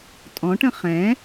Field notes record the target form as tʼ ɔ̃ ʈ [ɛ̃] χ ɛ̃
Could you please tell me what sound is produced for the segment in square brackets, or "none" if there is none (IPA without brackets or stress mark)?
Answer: ə̃